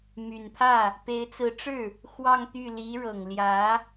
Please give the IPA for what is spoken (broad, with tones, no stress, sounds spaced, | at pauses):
m y˨˩ n pʰ ä˥˩ | p e˧˥ ɪ̯ t͡s ɹ̩˧˥ ʈ͡ʂ ɻ̩˥˩ | x w ɑ˥˧ ŋ t̪ y˥˩ l i˧˥ ɻ ɤ˨˩ ŋ l j ä˧˥